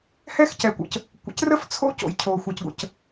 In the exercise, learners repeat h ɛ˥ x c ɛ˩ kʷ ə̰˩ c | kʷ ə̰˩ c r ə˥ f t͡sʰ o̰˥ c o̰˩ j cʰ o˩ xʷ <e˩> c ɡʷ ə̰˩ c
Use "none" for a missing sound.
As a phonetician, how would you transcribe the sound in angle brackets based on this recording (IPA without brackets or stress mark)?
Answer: ɛ˩